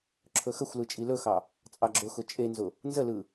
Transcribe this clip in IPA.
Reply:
ǁʰ ɵ x ə xʷ l ɯ t͡ʃʼ i l ɵ x ɑ | t͡sʼ ɑ ɡ͡ǁ ʊ x ʊ t͡ʃʼ e n z ʊ | n z ə l ɯ

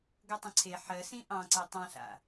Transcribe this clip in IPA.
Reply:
ɡ ʌ tˤ ə̃ ǀʰ e ħ ɜ s ĩ ʔ ɑ̃ ǀ ɛ tˤ ã ɬ a̰

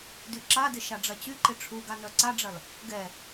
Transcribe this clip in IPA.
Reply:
d y ǁ a d ɪ ʃ a ɖ͡ʐ ɐ t͡ɕ y ǃ ɪ ʈ͡ʂʰ u ɡ a n œ ǀ a ɖ͡ʐ ɐ l | ɡ ɛ

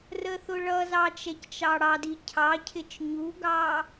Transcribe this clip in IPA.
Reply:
r ə θ ʊ ɭ ʌ z ɑ t͡ʃ ɛ c t͡ʃ ɑ ɽ ɑ d i cʰ ɑ cʰ ɪ t͡ʃ ɲ u ɡ ɑ

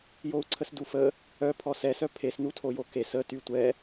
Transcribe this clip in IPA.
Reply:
j o u̯ ǀʰ ə s d u f ə | œ pʰ ɔ s ɛ s œ pʰ e s n u tʰ o j o k e s ə t y tʷ ɛ

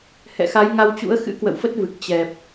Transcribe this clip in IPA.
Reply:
h ɛ̰˧˨ x a˨˦ j ŋ a˧ w t͡ɕ ṵ˧˥ ə̯ x ɨ̰˧˥ k w ə̰˧˨ w f ə˦˥ t̚ v ɨ˨˩ k̚ t͡ɕ ɛ˨˩ p̚

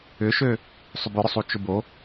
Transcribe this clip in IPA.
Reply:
ʏ ʃ ø | sˤ ʏ b ʏ ɾ ʊ sˤ u t͡ʃ ʊ b o

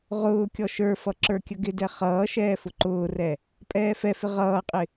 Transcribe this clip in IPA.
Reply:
ʁ ʊː kʲ ɔ ʃ ə˞ f ʌ ǁ ə˞ kʲ ə ɡ ɪ d ɛ χ ʌː ʃ ɛː f ʊ ǃ ʊː r ɛ | pʼ ɛː f ɛ f ɪ ʁ ʌː qʼ ɪ

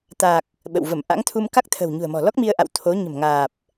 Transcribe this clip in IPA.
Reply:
t̪ a˨˩ k̚ | ɓ ə̰˧˨ w v ə˧˩ m ʔ a̰˧˥ ŋ t̪ʰ u˧ m k a˦˥ k̚ t̪ʰ ə̤˨˩ w ɲ ṳ˨˩ ə̯ m ɔ̤˨˩ l ɔ˦˥ k̚ m i˧ ə̯ ʔ a̰˧˨ w t̪ʰ o˨˦ ɲ ə̤˨˩ m ŋ aː˨˩ p̚

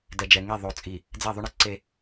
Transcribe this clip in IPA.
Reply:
d ɛ˨ d͡ʒ ɛ˨ ŋ e˦˨ ðˤ o˨ t͡sʼ i˨ | d͡z ɛ˦˨ ðˤ y˦ ɳ e˦ ǀ e˦

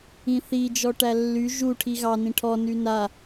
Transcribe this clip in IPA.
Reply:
ĩ θ i d͡ʒ ɔ ʈ æ lː y ʒ u ʈʰ i ɣ ɑ n ĩ ʈʰ ɔ n y n a

